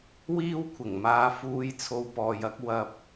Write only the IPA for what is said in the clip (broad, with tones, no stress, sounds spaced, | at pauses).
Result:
w iː˥ w kʷʰ ɪ˨˩ ŋ m aː˧ f uː˥ j t͡sʰ o˧ w p ɔː˨ j ɐ˥ k̚ w ɐ˧ p̚